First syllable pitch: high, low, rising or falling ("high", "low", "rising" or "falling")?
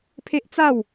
high